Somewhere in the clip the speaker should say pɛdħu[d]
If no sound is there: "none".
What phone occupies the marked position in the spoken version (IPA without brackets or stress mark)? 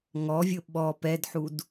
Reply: d